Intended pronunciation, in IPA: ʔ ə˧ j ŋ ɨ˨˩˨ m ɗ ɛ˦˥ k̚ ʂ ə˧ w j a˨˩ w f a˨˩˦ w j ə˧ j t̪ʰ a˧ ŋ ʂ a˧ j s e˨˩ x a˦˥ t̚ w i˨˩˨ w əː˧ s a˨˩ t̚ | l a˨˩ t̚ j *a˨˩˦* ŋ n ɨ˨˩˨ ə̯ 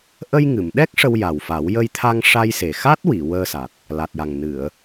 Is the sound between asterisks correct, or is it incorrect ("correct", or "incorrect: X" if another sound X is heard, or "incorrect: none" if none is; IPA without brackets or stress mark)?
incorrect: a˨˩